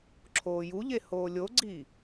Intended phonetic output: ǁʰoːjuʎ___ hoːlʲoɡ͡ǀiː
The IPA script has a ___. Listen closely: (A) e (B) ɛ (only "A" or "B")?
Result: A